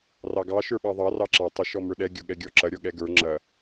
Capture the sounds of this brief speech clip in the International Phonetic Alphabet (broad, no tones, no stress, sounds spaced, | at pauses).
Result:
r ɑ ɡ ɑ ʃ ə˞ ɓ ɑ ðˤ ɑ r ɑ ǁ ɑ tˤ ə ʃ ɔ m ə˞ ɗ ɛ ɡʲ ɔ ɠ ɛ ɡʲ ɔ ǁ ɐ ɾʲ ɔ ɠ ɛ ɡ ə˞ ŋ͡ǁ ɐ